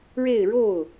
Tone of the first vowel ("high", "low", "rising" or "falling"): falling